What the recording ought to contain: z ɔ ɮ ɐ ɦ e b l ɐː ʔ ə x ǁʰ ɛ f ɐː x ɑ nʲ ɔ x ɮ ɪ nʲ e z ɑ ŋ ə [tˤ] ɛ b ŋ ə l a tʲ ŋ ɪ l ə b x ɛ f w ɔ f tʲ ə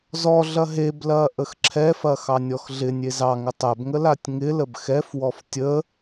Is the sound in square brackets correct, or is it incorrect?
correct